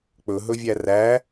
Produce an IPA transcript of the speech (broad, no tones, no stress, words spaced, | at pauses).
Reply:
k͡pɵɦɵvʲæ ræ